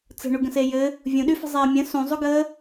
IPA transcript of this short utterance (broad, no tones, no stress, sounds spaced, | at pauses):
t͡s ə̤ ɳ u ɡ ə̃ s e j ɘ | vʲ ũ ɗ y f ə̤ zˤ eː mʲ ə̃ s ũ zˤ u ɡ əː